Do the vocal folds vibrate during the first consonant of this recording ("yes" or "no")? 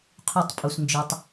no